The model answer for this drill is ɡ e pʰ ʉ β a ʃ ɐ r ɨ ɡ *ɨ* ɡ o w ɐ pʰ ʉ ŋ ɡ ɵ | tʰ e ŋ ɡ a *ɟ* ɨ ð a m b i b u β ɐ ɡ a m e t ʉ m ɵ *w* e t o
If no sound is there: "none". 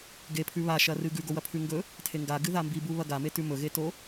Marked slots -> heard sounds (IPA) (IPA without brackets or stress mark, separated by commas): ʉ, ɡ, ɣ